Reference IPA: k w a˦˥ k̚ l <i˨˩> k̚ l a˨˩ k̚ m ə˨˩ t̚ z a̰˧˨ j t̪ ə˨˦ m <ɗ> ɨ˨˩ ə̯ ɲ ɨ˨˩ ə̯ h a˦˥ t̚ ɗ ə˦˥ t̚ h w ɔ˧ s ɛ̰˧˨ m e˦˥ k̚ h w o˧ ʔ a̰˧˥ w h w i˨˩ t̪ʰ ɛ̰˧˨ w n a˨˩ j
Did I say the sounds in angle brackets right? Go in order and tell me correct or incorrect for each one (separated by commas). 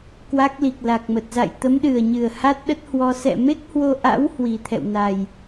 correct, correct